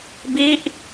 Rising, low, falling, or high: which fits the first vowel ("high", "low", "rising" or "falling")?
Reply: falling